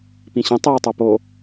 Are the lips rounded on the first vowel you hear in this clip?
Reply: no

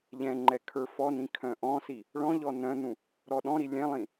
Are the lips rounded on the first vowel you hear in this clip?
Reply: no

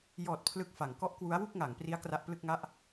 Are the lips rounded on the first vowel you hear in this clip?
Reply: yes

